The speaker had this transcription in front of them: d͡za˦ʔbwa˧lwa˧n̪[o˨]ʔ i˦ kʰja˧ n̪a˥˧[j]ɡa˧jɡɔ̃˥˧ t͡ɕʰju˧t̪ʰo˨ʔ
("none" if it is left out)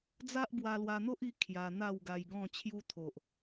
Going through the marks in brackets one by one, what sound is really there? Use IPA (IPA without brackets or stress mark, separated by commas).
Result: o˦, w